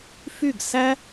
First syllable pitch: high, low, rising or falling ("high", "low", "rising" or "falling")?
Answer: falling